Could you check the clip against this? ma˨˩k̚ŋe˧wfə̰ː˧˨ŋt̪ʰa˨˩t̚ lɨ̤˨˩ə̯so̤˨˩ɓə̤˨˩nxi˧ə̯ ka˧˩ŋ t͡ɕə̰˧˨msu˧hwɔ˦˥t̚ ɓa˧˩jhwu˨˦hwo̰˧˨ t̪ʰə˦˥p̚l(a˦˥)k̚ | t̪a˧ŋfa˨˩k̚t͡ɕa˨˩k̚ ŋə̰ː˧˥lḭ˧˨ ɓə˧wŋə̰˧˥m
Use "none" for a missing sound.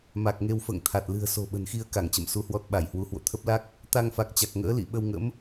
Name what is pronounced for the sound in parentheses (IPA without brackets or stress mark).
a˦˥